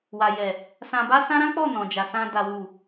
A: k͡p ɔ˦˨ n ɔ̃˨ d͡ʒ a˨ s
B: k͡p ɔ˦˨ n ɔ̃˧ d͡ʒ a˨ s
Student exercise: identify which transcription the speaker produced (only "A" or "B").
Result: A